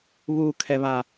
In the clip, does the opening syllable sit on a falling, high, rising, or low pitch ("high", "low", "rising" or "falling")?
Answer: low